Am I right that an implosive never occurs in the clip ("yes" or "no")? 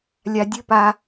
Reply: yes